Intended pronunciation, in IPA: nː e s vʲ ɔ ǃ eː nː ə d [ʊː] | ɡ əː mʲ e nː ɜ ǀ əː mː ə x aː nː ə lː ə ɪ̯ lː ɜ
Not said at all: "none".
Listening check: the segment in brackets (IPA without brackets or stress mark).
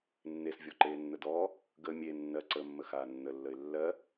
ɔː